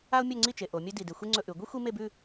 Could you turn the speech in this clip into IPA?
a˥ ʊ̯ mʲ ɵ˥˧ ŋ͡ǀ i˥˧ t͡ʃ e˩˧ ʔ o˩˧ mʲ ɵ˥ d i˧˩ d e˧ xʷ i˥ ŋ͡ǀ ɵ˧ ʔ ʉ˩˧ ɡʷ i˥ xʷ i˥ m e˥˧ b ʉ˥˧

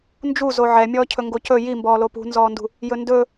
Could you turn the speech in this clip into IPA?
n d͡ʒ u z o ʕ ɛ mʲ ɔː cʰ ɵ ŋ ɡ o c ɵ j i m b ɔː l o p ṳ n z ɔː n d ṳ | j ɵ n d ɵ

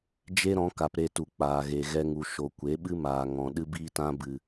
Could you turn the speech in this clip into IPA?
d͡ʒ e˦ ɾ ɔ̃˨˦ k a˨ p ɾ e˧ t u˨ k͡p aː˨ ɣ e˨ ɣ ɛ˧ ŋ u˨ ʃ o˨ kʷ e˨˦ ɓ ɨ˦ m aː˨ ŋ ɔ̃˨ ɗ ɨ˦ b iː˦ t ã˦ b ɨ˧

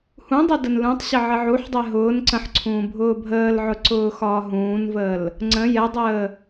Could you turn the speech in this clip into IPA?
h ũ dˤ ɛ d ə n l ũ tˤ ɕ ə ʕ ə ʕ u ħ dˤ ɛ ɦ ʊː n ǀ ə̃ ħ ǀʰ ũː bʱ ʊː bʱ əː l ʕ ʊ ǀ ʊː x ɒː ɦ ũː n v əː l | ŋ͡ǀ ə̃ j ɛ dˤ əː

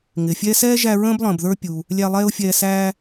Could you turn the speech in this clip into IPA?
ŋ ɪː˩ fʲ ɛː˦ s ɛː˥ ʒ æ˦ ɹ ə̃ː˥ b lˠ ə̃ː˨ b ð ə˞˦ pʲ u˨ | lʲ æ˦ lˠ ɛː˥ ʊ̯ fʲ ɛː˦ s æː˦

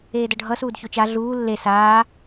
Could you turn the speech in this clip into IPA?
eː d ʌ ɖʱ ʌ s uː d ç o t͡ʃ a ɮ uː lː e s aː

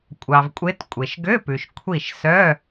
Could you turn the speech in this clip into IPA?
kʷʼ ɑ˨ v kʷʼ e˧˥ t kʷʼ e˨ ʃ ɡ ø˧˥˧ p ʉ˨ ʃ kʷʰ i˥˨ ʃ s œ˧˥˧

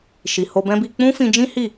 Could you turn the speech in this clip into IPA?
ʃ i˨ h o˧ b ɛ̃˦ b i˧ k͡p ũ˦ f ĩ˧ d͡ʒ ĩ˦ h i˦˨

